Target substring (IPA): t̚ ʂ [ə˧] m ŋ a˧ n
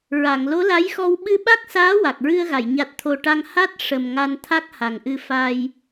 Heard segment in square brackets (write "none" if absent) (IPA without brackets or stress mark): ə˨˩